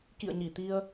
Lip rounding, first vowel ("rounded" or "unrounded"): unrounded